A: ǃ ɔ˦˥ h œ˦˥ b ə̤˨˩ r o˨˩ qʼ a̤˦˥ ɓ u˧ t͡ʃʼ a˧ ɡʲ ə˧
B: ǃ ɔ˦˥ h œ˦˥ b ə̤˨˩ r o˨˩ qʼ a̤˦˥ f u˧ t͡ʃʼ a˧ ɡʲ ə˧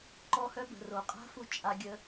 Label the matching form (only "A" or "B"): B